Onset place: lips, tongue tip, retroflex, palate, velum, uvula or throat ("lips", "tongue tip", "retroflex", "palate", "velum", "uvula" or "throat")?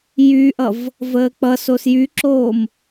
palate